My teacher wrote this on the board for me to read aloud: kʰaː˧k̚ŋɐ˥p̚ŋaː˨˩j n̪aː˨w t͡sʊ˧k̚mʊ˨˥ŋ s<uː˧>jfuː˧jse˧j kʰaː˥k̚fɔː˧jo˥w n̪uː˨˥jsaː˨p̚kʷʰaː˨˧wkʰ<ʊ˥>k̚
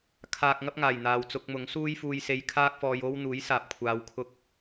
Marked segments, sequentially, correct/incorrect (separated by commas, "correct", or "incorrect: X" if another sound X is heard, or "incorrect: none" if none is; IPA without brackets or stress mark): incorrect: uː˥, incorrect: ʊ˧